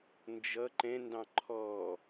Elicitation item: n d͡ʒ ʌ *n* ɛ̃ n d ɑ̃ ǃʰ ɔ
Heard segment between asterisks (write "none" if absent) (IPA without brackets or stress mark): ǃ